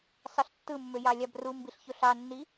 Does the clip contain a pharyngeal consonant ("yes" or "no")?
no